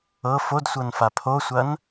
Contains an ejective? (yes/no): no